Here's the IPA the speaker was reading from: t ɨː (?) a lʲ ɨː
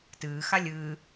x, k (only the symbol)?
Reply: x